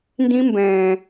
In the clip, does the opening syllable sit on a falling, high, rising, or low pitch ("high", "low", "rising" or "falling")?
high